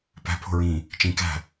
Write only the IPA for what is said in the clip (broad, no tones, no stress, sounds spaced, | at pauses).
p æ̤ pʰ o̤ ɹ ĩ | t͡ʃ ĩ k æ̤